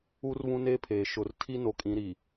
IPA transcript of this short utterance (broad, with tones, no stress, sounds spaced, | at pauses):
uː˦ r β ũ˦ n eː˦ pʰ eː˨ ʃ ʊ˨ r tʰ i˦ n o˨ kʼ ĩ˨˦ ɾ iː˨